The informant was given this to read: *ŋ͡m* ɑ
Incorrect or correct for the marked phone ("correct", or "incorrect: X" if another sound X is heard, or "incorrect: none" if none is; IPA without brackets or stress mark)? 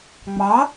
correct